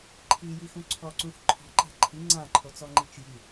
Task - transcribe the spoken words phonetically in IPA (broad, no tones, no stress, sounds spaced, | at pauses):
ǃʰ i j i x ũ ǀʰ ɔ ǀ ũ x ǃʰ ɔ̤ ǃ a̤ ǃʰ i ŋ͡ǀ ã ǃʰ o t͡s ɔ ŋ͡ǃ i t͡ʃ j i